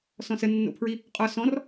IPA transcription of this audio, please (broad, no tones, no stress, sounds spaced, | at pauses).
s ɔ̃ s ə nː o̰ pʰ ɹ i | qʼ ɒ s ɔ̃ r